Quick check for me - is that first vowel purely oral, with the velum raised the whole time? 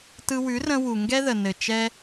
yes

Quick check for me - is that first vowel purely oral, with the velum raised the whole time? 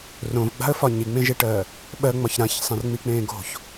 no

